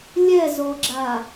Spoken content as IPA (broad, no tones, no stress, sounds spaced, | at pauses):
lʲ ɛ z o ɡ͡ǁ a